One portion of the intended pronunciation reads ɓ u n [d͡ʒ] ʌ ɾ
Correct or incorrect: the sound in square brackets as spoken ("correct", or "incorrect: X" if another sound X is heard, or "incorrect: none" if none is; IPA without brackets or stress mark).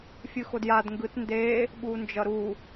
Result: correct